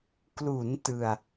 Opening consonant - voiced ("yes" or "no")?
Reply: no